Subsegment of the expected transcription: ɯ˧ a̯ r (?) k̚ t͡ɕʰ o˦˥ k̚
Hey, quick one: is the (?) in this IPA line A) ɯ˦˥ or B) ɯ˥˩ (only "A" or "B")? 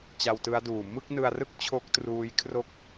B